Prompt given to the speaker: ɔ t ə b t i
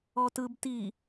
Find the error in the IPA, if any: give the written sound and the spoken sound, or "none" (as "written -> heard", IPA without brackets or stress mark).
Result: ə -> ɯ